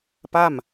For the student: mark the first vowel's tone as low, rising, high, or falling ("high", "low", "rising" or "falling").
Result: falling